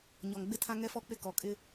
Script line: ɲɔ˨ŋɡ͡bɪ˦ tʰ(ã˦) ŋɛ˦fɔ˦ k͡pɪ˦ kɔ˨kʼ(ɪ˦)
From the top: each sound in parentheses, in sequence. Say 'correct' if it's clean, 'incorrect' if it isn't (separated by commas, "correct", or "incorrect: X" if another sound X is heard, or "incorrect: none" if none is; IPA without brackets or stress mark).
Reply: correct, correct